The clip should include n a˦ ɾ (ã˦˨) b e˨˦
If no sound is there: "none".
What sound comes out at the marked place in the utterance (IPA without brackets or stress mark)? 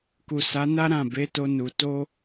ã˦˨